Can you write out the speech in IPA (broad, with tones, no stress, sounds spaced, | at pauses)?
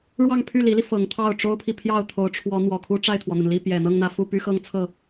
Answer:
ɻ w ɑ˥˧ ŋ pʰ y˥˩ l i˧˥ l i˧ f ɤ˧˥ ŋ t̪ʰ ɑ˥˩ ʊ̯ ʈ͡ʂ o˥ ʊ̯ pʰ i˨ pʰ j ɑ˥˩ ʊ̯ t̪ʰ o˧˥ ʊ̯ ʈ͡ʂʰ w ɔ˧˥ n̪ w ɔ˨˩ kʰ u˥ ʈ͡ʂ a˥˩ ɪ̯ t̪ʰ w ɔ˩ n̪ ə˩ n l i˥˩ p j ɛ˨˩ n̪ ɤ˥˧ ŋ n̪ ä˥˧ f u˥˩ p y˥ x ɤ˥ ŋ t͡sʰ ɤ˥˩